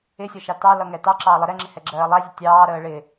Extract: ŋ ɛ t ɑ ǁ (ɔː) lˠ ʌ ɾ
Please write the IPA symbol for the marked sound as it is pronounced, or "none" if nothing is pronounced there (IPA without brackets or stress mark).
ɑː